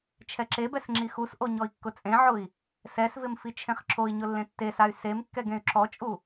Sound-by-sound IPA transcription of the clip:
t͡ʃʰɛǁebɛs ŋ͡ǁixusʔo ɲɔi̯kːʊt͡sʼẽʕʊi̯ | sɛsvɪm fit͡ʃʰẽχǁʰoi̯ɲʊ lːẽtːesay̯ semkːɛɡ ẽy̯ǁɔt͡ʃʼu

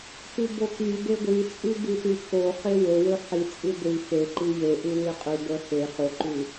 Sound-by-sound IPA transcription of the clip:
tʉbokybe ɡʷit͡sʼʉ bʉtʉkoχe wɵwɵ ħit͡sʼʉ ɡʷi xeǃi jeʔʉ wiqʼyɡʷœ xe χoǃʉ

